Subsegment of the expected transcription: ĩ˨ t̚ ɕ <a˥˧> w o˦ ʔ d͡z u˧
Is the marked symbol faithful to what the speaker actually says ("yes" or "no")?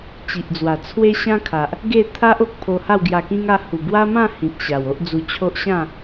no